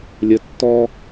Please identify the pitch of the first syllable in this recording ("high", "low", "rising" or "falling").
low